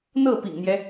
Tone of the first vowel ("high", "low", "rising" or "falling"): falling